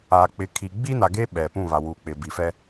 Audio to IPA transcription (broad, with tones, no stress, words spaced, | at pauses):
a˨k͡pɪ˨kʰi˨ ɡ͡bi˦na˨ɡe˦ ɓɛ˨ pũ˦˨βa˨wuː˨k͡pɪ˨ bi˨fɛ˦